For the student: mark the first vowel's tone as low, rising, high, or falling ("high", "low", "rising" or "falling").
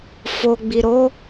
low